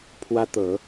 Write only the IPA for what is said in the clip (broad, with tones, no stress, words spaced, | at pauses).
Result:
pʰwä˥t̪ɤ˧˥